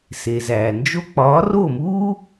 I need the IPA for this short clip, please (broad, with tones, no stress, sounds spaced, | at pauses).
s e˨ z æː˨ n d͡ʒ o˦ k͡p ɒː˨˦ r o˦˨ m uː˦